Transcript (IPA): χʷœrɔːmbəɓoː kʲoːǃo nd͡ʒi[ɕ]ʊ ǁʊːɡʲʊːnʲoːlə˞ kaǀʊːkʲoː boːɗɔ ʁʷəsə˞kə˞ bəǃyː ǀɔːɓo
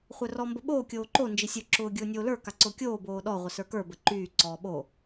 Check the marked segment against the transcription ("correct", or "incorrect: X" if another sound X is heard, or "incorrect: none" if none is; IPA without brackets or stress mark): incorrect: sʲ